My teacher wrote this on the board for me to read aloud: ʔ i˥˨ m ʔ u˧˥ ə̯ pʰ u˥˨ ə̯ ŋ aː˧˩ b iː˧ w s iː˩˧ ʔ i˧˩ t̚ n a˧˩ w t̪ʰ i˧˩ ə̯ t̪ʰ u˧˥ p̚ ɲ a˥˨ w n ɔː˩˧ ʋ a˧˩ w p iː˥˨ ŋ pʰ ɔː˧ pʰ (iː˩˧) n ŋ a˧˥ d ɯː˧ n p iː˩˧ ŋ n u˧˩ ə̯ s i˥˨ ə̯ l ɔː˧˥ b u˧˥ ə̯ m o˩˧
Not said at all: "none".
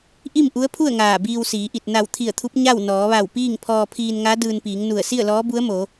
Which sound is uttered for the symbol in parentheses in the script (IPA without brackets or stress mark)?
iː˧